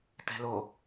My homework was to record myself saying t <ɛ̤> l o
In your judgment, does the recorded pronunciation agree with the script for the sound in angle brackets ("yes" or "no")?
yes